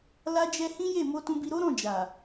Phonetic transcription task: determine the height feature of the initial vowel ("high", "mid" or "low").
low